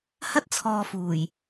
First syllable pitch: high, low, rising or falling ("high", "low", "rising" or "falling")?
high